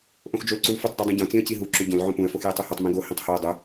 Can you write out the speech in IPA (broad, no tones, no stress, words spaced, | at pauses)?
ʔõxd͡ʒolǀulfʏtˤ dodˤũɟõ t͡sĩə̯ciɦu ǁʏɟõl ʕõpũə̯ foxjitˤuhutˤ mĩɡo hĩtˤhoə̯ dˤʏ